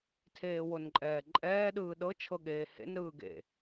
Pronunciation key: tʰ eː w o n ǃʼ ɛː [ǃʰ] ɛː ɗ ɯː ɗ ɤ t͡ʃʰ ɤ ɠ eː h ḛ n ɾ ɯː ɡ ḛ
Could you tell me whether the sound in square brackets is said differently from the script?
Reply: yes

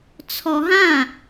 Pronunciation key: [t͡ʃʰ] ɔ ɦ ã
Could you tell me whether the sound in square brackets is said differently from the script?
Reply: yes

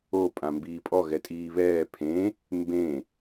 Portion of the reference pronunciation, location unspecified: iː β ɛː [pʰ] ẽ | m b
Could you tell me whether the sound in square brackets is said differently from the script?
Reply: no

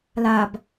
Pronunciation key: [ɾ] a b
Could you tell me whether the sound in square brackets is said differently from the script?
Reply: yes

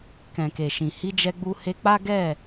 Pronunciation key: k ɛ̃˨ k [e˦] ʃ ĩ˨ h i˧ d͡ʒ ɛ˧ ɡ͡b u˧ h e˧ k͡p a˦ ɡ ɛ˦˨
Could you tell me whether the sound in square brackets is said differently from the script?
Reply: yes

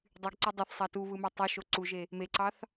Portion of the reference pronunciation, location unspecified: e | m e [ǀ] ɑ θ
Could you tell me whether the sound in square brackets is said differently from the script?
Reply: no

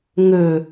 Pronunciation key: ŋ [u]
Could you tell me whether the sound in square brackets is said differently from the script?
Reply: yes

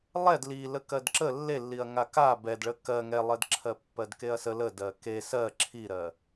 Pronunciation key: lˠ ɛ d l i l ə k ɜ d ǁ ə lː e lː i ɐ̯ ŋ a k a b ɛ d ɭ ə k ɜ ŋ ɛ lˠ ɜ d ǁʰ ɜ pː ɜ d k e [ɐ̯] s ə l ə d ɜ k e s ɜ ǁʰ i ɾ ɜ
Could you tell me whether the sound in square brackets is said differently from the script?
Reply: no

